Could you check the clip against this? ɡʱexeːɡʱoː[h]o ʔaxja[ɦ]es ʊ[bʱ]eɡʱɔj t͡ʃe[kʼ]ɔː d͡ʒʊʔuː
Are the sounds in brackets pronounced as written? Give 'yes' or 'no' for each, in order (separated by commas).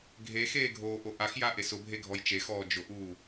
no, no, yes, no